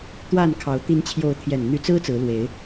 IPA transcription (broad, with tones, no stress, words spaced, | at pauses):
t̪wa˥˨nkʰɑ˨˦ʊ̯ t̪i˨˦nt͡ɕʰjo˨˦ʊ̯t̪ʰjɛ˨˩n n̪y˨˦t͡sɹ̩˦ t͡sɹ̩˨˦lwe˨˦ɪ̯